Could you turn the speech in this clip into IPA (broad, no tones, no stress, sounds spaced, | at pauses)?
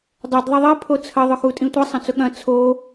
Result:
dˤ ʊ d ðˤ ɐ ðˤ i pʰ o t͡sʰ ɐ ðˤ ʊ x u tʼ ĩ tʷ i sˤ ɐ̃ t͡s ʊ ɠ ɐ̃ t͡sʰ o